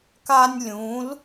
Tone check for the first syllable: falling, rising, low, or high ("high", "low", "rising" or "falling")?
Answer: high